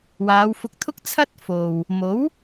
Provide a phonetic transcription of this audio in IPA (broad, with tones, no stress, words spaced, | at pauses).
waː˨˧wfʊ˧k̚t̪ʰʊ˥k̚ t͡sʰɐ˥t̚ fo˨w | mo˨˥w